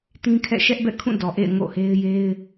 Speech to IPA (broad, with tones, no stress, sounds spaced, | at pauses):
t ĩ˦ kʰ ɛ̰˦˨ ʃ ɛ˦ ʔ b ɛ̰˦˨ kʰ ũ˦˨ d ɔ˨ ʔ ḛ˦˨ ɪ̯ ŋ o̰˦˨ h e˦ ɪ̯ j e˦ ɪ̯